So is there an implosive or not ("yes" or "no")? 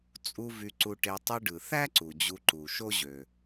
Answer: no